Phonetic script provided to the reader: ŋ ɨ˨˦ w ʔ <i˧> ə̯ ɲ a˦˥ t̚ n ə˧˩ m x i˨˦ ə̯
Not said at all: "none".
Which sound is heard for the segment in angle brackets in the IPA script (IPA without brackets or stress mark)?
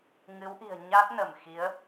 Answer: i̤˨˩